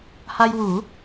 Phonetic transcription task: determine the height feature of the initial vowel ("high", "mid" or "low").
low